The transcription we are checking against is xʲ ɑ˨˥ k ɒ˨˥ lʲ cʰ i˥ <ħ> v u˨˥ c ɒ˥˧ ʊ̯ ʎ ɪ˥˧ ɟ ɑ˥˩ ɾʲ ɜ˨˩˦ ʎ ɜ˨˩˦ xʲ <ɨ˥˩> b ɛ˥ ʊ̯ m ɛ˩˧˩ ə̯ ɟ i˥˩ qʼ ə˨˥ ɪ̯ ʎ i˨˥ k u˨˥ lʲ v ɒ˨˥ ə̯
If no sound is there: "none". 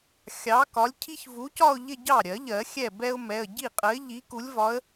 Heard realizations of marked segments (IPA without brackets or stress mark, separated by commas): ç, ɛ˥˩